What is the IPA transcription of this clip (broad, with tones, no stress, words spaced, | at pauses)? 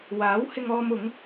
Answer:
waː˨˥whɪ˧ŋɔː˧m ʊ˨˥ŋ